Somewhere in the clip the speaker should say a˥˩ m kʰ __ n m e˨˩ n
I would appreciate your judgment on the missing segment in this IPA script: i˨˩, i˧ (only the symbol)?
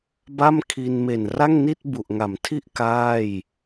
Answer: i˧